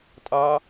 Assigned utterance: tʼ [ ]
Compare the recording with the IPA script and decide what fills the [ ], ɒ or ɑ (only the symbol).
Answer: ɑ